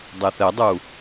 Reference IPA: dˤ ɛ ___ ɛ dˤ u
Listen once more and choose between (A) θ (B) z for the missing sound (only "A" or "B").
A